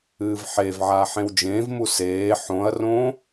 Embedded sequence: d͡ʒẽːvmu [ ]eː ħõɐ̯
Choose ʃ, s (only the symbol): s